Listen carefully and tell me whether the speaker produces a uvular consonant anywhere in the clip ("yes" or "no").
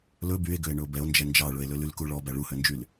no